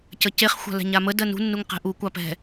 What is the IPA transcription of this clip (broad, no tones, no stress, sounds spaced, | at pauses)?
c ə c e χ xʷ a̤ l ɛ̤ ɲ a m ə d ɜ n ṳ nː u ŋ q ɛ̤ ʔ u kʷ ɑ p ɛ̤